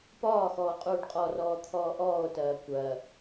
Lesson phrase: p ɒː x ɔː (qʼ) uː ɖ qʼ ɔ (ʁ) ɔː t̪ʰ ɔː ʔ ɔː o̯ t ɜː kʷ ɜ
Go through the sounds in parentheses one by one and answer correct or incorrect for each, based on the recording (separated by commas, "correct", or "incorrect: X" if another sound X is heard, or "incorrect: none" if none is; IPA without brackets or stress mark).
correct, incorrect: r